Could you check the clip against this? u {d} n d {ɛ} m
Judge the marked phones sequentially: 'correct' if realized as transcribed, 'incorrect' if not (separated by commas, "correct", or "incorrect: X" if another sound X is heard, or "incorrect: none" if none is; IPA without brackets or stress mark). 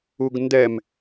incorrect: ɡ, correct